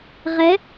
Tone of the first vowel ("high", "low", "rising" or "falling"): rising